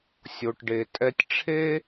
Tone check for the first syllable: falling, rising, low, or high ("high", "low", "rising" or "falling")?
low